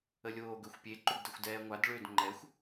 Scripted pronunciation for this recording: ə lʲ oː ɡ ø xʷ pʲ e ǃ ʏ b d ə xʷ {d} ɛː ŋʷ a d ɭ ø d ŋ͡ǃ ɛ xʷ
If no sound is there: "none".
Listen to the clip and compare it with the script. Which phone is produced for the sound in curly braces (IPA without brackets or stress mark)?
d